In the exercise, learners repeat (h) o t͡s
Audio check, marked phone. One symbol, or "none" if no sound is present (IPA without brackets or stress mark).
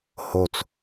h